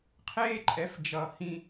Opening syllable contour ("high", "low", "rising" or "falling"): high